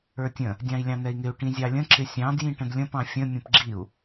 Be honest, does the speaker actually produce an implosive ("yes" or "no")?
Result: no